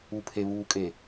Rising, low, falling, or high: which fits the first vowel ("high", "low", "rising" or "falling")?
low